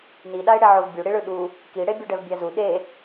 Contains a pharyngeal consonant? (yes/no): yes